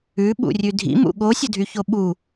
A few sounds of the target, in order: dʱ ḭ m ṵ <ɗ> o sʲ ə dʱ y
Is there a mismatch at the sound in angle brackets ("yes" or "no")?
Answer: yes